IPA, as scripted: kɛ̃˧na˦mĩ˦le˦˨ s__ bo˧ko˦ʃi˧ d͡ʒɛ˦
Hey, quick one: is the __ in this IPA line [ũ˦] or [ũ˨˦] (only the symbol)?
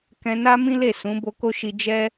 ũ˨˦